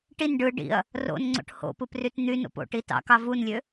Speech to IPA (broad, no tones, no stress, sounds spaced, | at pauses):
ʈ i n ɖ ɯ ɖ ḭ ɐ̯ | r o̰ n ŋ͡ǀ o̰ ʈ h o̰ p ɯ p r y t n̪ y n o̰ p o̰ ʈ i t ɑ̰ k ɑ v u n lʲ ø